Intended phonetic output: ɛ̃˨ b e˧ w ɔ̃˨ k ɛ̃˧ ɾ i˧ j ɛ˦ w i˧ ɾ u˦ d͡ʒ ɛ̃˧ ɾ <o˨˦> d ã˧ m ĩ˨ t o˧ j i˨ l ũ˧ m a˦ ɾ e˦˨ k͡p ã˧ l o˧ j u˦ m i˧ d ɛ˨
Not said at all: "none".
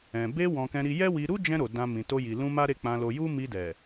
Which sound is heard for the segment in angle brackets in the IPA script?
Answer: o˨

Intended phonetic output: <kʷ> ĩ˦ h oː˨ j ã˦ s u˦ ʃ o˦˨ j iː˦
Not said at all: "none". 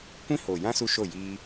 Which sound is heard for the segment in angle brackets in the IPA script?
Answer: kʷ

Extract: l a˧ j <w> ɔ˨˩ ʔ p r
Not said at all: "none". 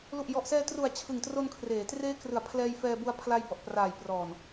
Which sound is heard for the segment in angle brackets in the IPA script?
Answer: b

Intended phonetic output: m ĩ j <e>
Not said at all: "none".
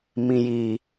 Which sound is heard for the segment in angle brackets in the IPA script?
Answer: i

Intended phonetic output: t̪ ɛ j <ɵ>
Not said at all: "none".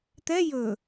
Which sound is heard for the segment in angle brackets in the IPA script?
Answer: ɵ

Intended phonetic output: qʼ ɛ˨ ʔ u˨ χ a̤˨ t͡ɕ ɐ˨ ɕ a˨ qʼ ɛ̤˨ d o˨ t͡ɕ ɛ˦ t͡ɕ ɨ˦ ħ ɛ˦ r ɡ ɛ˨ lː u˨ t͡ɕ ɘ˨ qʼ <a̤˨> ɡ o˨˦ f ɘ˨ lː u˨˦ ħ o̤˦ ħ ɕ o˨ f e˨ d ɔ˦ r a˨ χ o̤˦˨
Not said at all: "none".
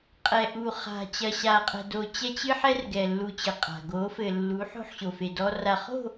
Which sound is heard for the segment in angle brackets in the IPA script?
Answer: a̤˨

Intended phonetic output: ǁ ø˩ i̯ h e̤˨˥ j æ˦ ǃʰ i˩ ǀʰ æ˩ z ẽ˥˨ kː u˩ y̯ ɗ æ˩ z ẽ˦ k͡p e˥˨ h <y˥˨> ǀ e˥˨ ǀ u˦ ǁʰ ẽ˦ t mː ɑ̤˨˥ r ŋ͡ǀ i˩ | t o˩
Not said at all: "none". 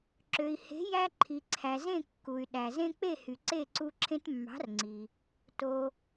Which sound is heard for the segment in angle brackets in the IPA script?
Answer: y˩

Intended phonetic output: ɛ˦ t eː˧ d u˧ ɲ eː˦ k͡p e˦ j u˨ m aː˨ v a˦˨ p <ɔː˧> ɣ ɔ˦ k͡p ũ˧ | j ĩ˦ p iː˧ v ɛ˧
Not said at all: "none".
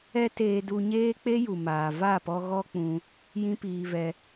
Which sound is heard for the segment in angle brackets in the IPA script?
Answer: ɔ˧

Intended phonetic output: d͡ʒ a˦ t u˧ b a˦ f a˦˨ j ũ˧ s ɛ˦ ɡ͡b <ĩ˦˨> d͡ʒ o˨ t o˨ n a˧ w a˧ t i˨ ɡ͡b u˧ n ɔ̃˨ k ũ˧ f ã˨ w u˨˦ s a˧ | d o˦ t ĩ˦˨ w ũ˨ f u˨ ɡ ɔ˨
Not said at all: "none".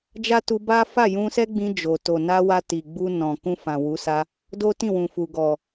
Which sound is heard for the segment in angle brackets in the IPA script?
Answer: ĩ˧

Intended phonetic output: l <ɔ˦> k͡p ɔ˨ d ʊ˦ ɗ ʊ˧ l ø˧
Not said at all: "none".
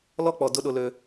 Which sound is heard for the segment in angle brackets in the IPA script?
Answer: ɔ˦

